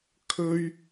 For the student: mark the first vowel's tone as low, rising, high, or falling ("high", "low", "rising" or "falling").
high